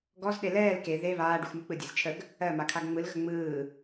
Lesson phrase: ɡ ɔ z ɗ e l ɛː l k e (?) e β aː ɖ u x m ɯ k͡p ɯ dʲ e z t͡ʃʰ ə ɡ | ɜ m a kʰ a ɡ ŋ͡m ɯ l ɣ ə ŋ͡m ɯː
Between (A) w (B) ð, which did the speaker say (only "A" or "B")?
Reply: B